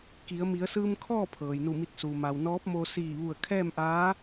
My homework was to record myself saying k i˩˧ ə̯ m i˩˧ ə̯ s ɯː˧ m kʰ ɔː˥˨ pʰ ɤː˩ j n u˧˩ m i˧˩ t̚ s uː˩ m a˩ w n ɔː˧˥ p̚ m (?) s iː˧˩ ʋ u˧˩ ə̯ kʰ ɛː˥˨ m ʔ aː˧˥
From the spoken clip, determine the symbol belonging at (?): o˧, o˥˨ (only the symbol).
o˧